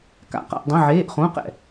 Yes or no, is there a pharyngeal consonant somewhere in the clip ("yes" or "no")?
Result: yes